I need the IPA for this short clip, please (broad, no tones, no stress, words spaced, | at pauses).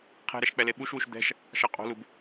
qʰɛ̤ɾɛʃ k͡pɛleɓuʃwuʃ d̪ɛ̤ʃ | ʃɑqʼo̤lub